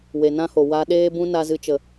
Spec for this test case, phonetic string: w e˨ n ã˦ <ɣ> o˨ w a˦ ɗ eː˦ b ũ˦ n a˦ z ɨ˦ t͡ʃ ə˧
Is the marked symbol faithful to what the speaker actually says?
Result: no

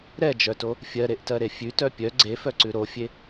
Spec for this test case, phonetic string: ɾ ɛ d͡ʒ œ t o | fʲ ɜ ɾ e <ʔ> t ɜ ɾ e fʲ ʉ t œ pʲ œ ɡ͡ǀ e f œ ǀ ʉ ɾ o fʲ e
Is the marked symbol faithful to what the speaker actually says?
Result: yes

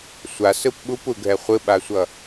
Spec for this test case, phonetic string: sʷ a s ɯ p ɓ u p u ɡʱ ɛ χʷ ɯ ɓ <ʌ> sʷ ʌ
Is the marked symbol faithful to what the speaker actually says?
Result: no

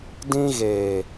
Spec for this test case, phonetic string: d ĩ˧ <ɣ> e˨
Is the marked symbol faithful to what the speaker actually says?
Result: yes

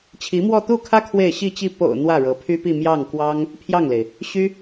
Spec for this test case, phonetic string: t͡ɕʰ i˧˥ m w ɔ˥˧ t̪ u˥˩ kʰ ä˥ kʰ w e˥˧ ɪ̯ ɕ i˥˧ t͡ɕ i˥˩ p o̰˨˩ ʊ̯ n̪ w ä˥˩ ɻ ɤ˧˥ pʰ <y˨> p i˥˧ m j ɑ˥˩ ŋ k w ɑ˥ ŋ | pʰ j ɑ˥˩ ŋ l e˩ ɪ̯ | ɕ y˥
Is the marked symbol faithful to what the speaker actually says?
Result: no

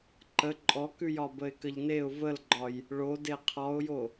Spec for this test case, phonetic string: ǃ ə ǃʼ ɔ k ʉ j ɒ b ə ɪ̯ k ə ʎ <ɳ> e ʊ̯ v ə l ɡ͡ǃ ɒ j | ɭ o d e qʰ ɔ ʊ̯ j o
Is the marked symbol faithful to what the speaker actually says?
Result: no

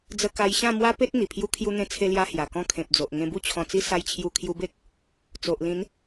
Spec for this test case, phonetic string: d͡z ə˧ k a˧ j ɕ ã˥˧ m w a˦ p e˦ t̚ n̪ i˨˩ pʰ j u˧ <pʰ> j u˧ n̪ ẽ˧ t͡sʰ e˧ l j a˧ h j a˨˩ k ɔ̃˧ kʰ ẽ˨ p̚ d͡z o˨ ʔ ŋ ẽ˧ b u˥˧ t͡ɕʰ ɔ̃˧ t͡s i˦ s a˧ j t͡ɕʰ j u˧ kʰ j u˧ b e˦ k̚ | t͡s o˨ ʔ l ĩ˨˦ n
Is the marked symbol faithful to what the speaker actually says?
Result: no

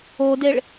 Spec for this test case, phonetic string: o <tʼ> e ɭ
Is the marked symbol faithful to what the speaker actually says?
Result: no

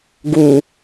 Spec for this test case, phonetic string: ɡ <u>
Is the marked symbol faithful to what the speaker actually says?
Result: yes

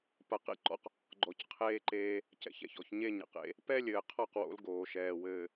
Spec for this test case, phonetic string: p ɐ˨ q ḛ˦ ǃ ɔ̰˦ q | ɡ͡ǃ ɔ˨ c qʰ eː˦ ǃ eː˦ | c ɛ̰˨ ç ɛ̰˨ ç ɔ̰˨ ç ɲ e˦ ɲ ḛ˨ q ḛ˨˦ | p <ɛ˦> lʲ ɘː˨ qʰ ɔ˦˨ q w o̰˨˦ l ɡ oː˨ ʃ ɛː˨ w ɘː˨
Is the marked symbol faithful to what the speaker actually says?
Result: yes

